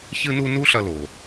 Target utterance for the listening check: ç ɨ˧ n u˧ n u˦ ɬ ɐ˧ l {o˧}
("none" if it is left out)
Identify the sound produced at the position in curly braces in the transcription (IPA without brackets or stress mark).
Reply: o˨